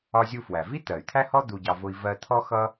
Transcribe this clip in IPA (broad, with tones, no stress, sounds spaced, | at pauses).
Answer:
ɒ˧ zʲ u˧ f w æ˩ v i˥ t̪ ɜ˩ y̯ t̪ʰ æ˥ h ɔ˥ d̪ u˧ ɟ ɑ˧ v ʊ˧ i̯ v ɜ˧ t̪ʰ ɔ˥ x ʌ˥